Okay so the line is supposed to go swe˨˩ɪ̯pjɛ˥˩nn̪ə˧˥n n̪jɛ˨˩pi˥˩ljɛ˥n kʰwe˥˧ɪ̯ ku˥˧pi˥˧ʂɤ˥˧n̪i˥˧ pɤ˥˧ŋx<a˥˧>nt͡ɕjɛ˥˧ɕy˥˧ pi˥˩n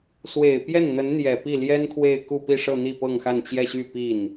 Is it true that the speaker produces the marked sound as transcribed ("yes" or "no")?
yes